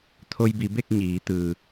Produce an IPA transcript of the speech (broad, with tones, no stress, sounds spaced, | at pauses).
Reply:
t̪ʰ o˧ j b i˩˧ b e˥˨ k̚ ɲ iː˩˧ t̪ ɯː˩